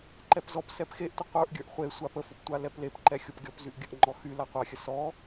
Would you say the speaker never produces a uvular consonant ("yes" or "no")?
no